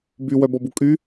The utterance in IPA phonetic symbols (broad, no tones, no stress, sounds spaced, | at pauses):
b y w œ b ɔ b u kʼ y